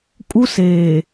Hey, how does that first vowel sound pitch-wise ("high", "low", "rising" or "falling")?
high